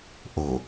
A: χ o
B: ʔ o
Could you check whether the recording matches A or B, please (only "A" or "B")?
B